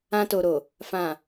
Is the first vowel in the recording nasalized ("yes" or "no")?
yes